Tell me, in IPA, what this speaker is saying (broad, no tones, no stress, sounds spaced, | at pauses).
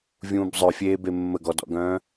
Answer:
vʲ ũː b zˤ œ fʲ eː b e mː ə ɡ ɔ d ɔ̰ ɡ œ̃ː